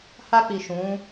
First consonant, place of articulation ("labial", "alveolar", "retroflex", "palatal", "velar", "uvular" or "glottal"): glottal